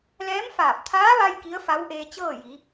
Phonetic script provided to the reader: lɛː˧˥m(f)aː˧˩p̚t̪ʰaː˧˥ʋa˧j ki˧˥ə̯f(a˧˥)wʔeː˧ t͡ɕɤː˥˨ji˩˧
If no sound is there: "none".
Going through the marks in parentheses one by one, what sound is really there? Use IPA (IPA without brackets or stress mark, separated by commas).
f, a˧˥